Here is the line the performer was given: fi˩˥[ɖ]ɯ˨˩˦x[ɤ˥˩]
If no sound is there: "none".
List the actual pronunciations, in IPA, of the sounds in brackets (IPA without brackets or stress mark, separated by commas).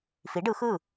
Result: ɖ, ɯ˥˩